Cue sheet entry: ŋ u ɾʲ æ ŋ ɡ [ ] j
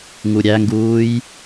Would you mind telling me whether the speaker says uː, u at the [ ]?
uː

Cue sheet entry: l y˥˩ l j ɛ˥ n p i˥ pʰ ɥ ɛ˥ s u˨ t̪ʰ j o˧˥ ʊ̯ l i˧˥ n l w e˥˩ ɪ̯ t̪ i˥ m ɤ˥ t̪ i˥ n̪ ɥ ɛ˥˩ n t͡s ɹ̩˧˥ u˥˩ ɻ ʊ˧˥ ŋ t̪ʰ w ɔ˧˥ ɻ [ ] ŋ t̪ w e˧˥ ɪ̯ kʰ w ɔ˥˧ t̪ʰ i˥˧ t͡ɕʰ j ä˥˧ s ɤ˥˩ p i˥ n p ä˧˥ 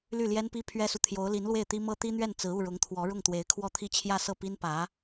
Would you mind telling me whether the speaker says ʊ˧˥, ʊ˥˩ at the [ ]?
ʊ˥˩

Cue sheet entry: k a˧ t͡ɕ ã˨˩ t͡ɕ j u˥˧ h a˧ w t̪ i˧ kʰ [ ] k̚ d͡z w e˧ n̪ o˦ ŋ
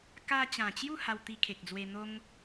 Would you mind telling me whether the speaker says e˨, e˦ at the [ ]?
e˨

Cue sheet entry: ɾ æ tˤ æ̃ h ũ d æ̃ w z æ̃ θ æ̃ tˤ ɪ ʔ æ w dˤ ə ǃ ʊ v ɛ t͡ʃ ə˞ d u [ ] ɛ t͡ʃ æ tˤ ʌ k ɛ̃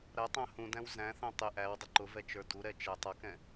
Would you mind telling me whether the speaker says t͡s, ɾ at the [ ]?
ɾ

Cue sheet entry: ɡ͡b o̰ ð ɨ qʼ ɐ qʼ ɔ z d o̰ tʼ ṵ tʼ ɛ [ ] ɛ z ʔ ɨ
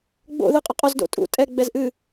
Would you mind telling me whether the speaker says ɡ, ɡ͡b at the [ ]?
ɡ͡b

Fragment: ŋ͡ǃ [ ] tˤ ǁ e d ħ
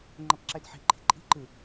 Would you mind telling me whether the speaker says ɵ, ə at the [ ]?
ə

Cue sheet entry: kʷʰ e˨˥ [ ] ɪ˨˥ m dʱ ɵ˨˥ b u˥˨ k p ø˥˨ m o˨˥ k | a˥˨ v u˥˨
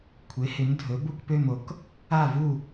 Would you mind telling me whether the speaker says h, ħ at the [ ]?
h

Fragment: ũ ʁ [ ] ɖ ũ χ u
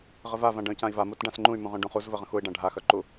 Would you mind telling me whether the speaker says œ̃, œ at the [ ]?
œ̃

